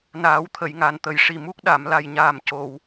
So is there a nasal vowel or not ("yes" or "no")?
no